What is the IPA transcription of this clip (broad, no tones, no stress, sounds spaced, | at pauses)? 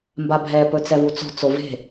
m b a bʱ ɛ p ɵ t͡s ɛ v u t͡s o̤ t͡s o v e̤